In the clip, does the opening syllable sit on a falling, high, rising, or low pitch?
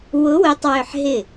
rising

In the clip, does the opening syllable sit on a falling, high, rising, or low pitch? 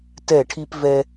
falling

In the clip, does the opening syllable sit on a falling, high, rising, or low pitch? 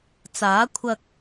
rising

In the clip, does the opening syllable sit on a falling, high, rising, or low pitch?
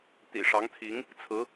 low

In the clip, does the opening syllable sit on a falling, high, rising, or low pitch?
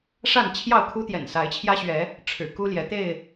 falling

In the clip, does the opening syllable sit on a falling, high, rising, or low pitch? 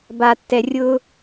low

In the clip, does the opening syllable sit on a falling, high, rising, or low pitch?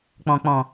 low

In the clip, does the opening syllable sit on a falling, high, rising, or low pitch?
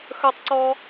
high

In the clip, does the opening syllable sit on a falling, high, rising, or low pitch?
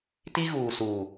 high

